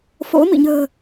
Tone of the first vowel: rising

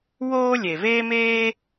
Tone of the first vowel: high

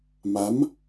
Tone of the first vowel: rising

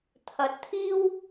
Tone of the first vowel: rising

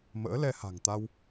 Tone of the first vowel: rising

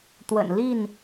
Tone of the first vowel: low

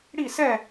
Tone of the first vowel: falling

